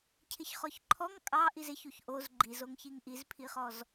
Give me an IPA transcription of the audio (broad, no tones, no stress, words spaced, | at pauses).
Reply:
cʰɪçχɔçǃʰɔŋ kʼɑ ʔizɪçuç ʔoz ɡ͡ǃizoŋçiŋ ʔizpʰiχɔz